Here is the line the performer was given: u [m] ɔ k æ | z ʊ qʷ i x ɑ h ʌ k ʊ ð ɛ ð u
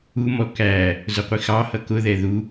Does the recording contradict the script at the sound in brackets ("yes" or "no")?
no